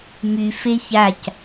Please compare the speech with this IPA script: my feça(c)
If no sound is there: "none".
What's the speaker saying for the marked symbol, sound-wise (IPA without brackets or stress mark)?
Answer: c